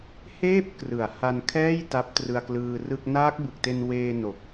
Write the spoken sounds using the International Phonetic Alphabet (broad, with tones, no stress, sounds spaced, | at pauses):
h eː˥˩ p̚ k r ɯ˩˦ a̯ h a˧ n kʰ ɛː˥˩ j t a˦˥ p̚ t r ɯ˧ a̯ k l ɯː˧ r ɯ˥˩ k̚ n aː˦˥ k̚ b ɯ˨˩ k̚ t e˧ n w eː˧ n o˨˩ k̚